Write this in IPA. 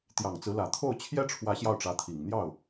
t̪ j ɑ˨˩ ŋ t͡s ɹ̩˧˥ l ä˨˩ t̪ʰ o˥˩ ʊ̯ t͡ɕʰ j ɛ˥ ʈ͡ʂʰ w ä˧˥ ɕ j ɑ˥˩ ʊ̯ ʈ͡ʂ ä˧˥ t̪ʰ i˨˩ ŋ n̪ j ɑ˥˩ ʊ̯

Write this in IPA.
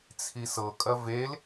t͡sʰ i s ɤ kʼ ɐ v e l

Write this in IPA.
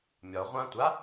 mʲ ɒ ʁʷ ã tʷ a

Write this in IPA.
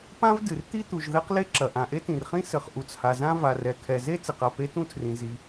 p ã˥ v d ɨ˩ r t̪ i˥ t̪ u˩ ʒ ð ɛ˥ q l e˥ ǁ ɐ˩ ʔ ã˩ ʔ e˥ t ĩ˩ r χ ĩ˥ s ɘ˩ χ ʔ u˩ t͡s h a˩ z ã˥ v a˩ r ɛ˩ kʰ ɛ˩ z e˥ t͡s ɨ˩ q a˩ p e˥ t ũ˥ tʰ r ĩ˩ z i˩

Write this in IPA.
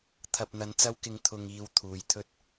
t̪ʰ ɐ˨ p̚ n̪ ɐ˨˧ n t͡s ɐ˧ w k ɪ˨ ŋ t̪ʰ ʊ˨ ŋ iː˨ w t̪ʰ uː˨ j t̪ʰ ɵ˥ t̚

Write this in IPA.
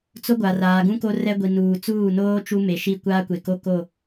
t͡s o˦ ɡʷ a˨ r aː˨ ɡ ũ˦ k o˦ r ɛ˦ ɡʷ i˨ n uː˨ t͡s uː˦˨ n oː˦ t͡ʃ u˦ m e˨ ʃ i˦˨ kʷ aː˦ kʷ e˨ k o˦ k o˦˨

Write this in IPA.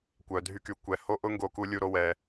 kʷ œ˩ dʱ y˨ k y˩ kʷ ɛ˩ h o˦ ʔ ʊ˦ ŋ ɡ o˨ k u˨ lʲ u˨ ɾ o˨ w ɛ˩

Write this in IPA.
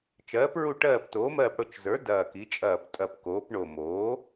t͡ʃ ɜː˨˥ p ɹ u˦˨ ʈ ɜː˦˨ p t oː˨˥ m ɜː˦˨ p ɽ ʊ˦˨ t͡ʃ z ə˞˨˥ d ɐː˦˨ k i˨˥ t͡ʃʼ ɐː˦˨ p tʼ ɐ˦˨ p k oː˨˥ p ɳ o˦˨ m oː˨˥

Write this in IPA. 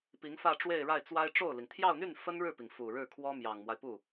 p i˧˥ ŋ f ä˥˧ ʈ͡ʂ w e˥˧ ɪ̯ ɻ a˥˩ ɪ̯ t͡s w a˥ ɪ̯ ʈ͡ʂ o˥˩ ʊ̯ l i˩ ŋ t̪ʰ j ɑ˥˧ ʊ̯ n̪ y˥˩ n f ə˥ n ɻ ɻ̩˥˩ p i˩ ŋ f u˨˩ ɻ ɻ̩˥˩ kʰ w ɔ˥ m j ɑ˨˩ ŋ m w a˦ ɪ̯ p u˥˩

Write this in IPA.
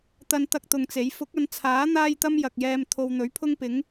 t̪ ɐ˥ n t̪ ɐ˥ k̚ t̪ ʊ˧ ŋ t͡s e˨˥ j f ʊ˨˥ k̚ ɐ˨˧ n t͡sʰ aː˨˥ n̪ aː˥ j t̪ ɐ˥ m j ɐ˨ k̚ j ɛː˧ m t̪ʰ o˧ w n̪ ɵ˨˥ ɥ pʰ ʊ˥ ŋ p ɪ˨˥ ŋ

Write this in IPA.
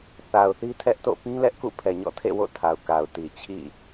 θ a˨ ʊ̯ θ i˦ tʰ ɛ˦ ʔ t o̰˦˨ p ĩ˦ l ɛ˦ ʔ k ṵ˦˨ pʰ ɛ˨ ɲ ɔ̰˦˨ tʰ ḛ˦˨ w o̰˦˨ tʰ a˨ ʊ̯ k a˨ ʊ̯ t i˨ t͡ɕʰ ḭ˦˨

